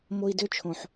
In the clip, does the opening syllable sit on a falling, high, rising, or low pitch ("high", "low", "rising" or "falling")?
high